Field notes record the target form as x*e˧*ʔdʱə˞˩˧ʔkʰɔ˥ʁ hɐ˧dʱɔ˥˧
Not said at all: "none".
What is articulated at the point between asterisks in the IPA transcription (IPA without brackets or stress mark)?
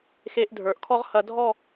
e˧